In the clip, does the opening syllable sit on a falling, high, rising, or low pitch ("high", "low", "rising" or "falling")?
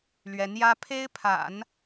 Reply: rising